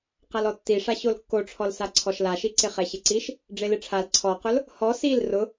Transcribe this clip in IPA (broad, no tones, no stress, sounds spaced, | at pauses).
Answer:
q a l ɔ tː i ʂ a ɕ o l kː o ʈ͡ʂʰ ɔ l s a ǀʰ ɔ ʃ l a ʃ i ǀ ɪ χ ɛ ɕ ɪ ǀ i ʃ | ɖ͡ʐ e l ɪ ʈ͡ʂʰ a l ǀʰ ɔ q ʊ l | h ɔ s i l r ʊ